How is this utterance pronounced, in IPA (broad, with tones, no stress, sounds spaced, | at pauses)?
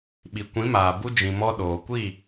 ɓ i˨ kʷ ĩ˨˦ m aː˨ b u˧ d͡ʒ ĩ˨ m ɔ˧ ɗ oː˨ kʷ iː˦˨